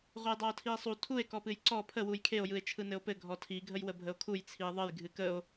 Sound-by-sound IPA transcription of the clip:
ʁʷ ə j dˤ a o̯ tʰ i e̯ sˤ u tʰ u e̯ k ɔ p ɨ j ǀ ɔ pʰ ə w u j kʰ e o̯ j ɯ e̯ t͡ʃʰ ɯ n ɘ o̯ p ɘ ɡʱ ɔ tʰ i ɡʱ ə j w ə bʱ ə o̯ kʰ u j t͡sʰ i e̯ ðˤ ə j ɡʱ ɨ k ə o̯

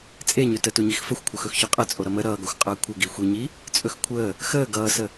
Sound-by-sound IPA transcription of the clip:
t͡sʼ e ɲ ɵ t ə t u ɲ i x f ə xʷ kʷʰ ə x ɵ x ç ɵ qʼ ə t͡sʼ o ɾ ʌ m ə ɾ ʌː ɡ ʌ xʷ qʼ əː kʷʰ ə ɡ i xʷ e ɲ iː | t͡sʼ ɵ x kʷʰ əː | x əː ɡ ʌː s ə

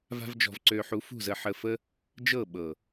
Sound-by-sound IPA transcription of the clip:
v a̤˦ v d͡ʒ ɔ̤˧ v ǀ ø˧ ħ u˨˦ f ṳ˦˨ z ə˧ ħ ə˧ f ə˦ | d͡ʒ ɤ˦˨ ɓ ɤ˨

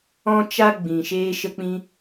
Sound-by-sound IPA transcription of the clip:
ɔ̃˦ t͡ʃ a˦ ɡ͡b ĩ˨ ʃ eː˧ ʃ ə˧ k͡p ĩ˧

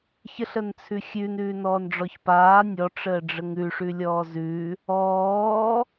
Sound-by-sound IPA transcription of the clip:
ç ə ɬ ə n t͡sʰ ʉ xʲ ʉ n ʉː n ɔː n ɖ͡ʐ ɔ ç p aː nʲ ɔ ʈ͡ʂ əː ɖ͡ʐ ə ŋ ʉ ʂ ʉ lʲ ɔː z ʉ | ɔː

